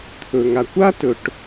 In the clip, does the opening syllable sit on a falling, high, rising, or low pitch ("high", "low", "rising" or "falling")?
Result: low